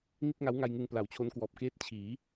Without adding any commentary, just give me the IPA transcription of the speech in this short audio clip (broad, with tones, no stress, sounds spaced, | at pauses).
n i˥˩ t̚ ŋ a˦˥ w ŋ a˧ j ŋ ɯ˧ ŋ p l a˨˩ w t͡ɕʰ o˦˥ n k w ɔː˨˩ p̚ k eː˥˩ t̚ t͡ɕʰ iː˩˦